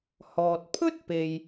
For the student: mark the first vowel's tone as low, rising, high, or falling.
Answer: low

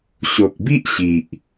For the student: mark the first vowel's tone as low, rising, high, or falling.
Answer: low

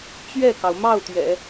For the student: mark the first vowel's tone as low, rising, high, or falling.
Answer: falling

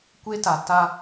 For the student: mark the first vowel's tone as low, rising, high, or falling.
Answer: high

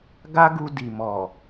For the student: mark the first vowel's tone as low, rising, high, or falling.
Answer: high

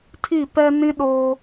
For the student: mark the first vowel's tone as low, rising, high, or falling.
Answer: falling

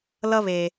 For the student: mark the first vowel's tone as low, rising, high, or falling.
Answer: high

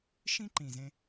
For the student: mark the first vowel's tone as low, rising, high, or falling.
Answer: high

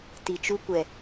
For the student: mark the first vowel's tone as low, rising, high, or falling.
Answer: low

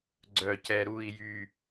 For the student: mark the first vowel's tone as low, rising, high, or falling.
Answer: low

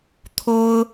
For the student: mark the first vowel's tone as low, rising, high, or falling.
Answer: high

